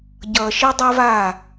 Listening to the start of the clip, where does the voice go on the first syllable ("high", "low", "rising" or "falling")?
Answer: low